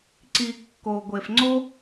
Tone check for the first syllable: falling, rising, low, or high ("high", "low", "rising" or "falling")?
low